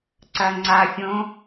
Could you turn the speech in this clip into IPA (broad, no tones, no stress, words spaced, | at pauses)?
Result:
ǀɐŋ͡ǀafʲõ